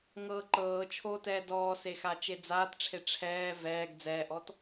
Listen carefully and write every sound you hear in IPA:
ŋ ɤː ǃ ɤː t͡ʃʰ oː t ɛː d ɔː s e x a t͡ʃ e d͡z aː t ʈ͡ʂʰ e ʈ͡ʂʰ ɛː v ɛː ɡ d͡z ɛː ʔ ɔ t

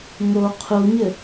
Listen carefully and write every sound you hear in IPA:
ŋ o qʰ u ɲ ɘ

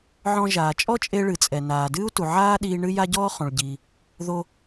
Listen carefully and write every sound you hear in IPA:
ʕ ɔ̃˧ ʒ aː˩ t͡ʃʼ ɔ˥ t͡ʃʼ e˧ ɭ ɨ˩ t͡sʼ ɛ˩ n aː˩ d ɨː˥ u̯ t u˩ ʕ aː˥ ɗ iː˧ ɳ ɨ˥ j a˥ ɟ ɔː˥ χ õ˩ ɭ ɟ iː˩ | ð o˧

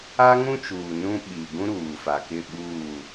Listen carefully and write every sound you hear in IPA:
a˦ ŋ ũ˦ t͡ʃ uː˨ n ũ˦ ɓ i˨ ɡ ũ˦ ɾ uː˨ f a˨ k ɪ˦˨ ɓ uː˦˨

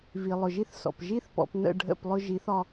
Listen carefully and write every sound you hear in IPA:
v i˨ lˠ ʊ˨ ʒ i˦ θ s ɔ̰˨ p ʒ i˦ θ p ɔ̰˨ p n ə̰˦˨ ɖʱ ə̰˦˨ p lˠ ʊ˦ ʒ i˨˦ θ ɒ˦

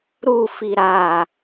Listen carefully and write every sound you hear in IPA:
ɾ u f i ɾ a

